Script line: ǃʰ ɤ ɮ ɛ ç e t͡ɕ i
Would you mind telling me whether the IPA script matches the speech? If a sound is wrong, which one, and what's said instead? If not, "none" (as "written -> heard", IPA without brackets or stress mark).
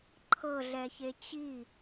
none